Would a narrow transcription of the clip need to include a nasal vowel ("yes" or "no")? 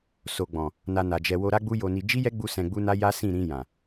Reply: yes